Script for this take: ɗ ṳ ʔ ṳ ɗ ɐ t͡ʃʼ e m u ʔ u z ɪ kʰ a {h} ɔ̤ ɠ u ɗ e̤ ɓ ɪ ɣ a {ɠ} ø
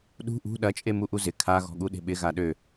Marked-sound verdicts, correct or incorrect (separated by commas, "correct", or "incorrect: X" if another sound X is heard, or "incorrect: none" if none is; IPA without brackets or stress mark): incorrect: ɣ, incorrect: ɗ